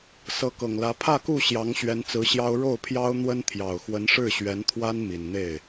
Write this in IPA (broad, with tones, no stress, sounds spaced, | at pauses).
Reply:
s ɤ˧˥ k ɤ˨˩ ŋ l ä˧˥ pʰ ä˥˧ k u˥˩ ɕ j ɑ˧˥ ŋ ɕ ɥ ɛ˧˥ n t͡s ɹ̩˧˥ ɕ j ɑ˥ ʊ̯ ɻ o˥˩ ʊ̯ pʰ j ɑ˥ ʊ̯ n̪ w ə˥ n t̪ʰ j ɑ˨˩ ʊ̯ x w ə˧˥ n ʂ ɻ̩˥˩ ɕ ɥ ɛ˧˥ n t̪ʰ w a˥ n m i˨˩ n n̪ e˥˩ ɪ̯